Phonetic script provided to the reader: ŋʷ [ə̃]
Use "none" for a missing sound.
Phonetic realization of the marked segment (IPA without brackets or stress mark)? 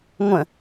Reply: ə̃